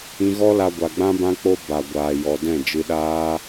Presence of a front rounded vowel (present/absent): absent